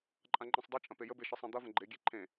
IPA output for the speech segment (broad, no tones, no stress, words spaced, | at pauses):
ǃʼãŋ͡ǃẽsˤdˤɨt͡ʃʼɐ̃ pejəbe ʃɨsˤẽd̪ɐvə̃ ɡ͡ǃeɡʲe ǃʰẽ